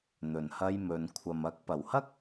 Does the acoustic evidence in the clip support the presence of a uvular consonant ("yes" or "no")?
no